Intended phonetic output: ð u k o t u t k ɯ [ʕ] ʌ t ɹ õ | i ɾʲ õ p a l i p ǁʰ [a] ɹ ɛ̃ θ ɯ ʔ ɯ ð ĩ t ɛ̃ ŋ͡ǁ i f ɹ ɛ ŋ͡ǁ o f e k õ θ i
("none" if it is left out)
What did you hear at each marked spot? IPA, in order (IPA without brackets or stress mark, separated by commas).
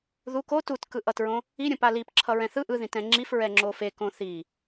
ʔ, ʌ